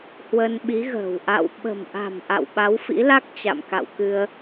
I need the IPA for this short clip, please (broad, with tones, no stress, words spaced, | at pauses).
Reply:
hwə˧nɓi˨˦ɣə̤ː˨˩w ʔa̰˧˨w ɓə̤˨˩mʔa̤˨˩m ʔa̰˧˨wɓa˨˦wfḭ˧˥la˦˥k̚ t͡ɕa̰˧˨mka̰˧˨wkɨ˧ə̯